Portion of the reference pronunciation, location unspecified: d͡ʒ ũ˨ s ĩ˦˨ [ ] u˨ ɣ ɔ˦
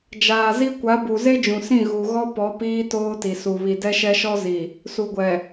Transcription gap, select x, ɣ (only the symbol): ɣ